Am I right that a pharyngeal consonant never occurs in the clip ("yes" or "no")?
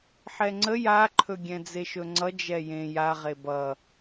no